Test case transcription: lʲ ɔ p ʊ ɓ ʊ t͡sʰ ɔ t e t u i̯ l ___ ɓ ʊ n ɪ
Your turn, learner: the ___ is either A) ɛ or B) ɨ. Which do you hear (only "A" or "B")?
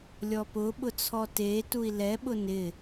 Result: A